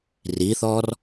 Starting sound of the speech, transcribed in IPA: r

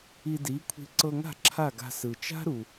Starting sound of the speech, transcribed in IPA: i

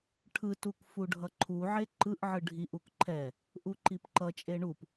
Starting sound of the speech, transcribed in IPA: ʈʰ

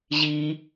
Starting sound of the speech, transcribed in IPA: ʑ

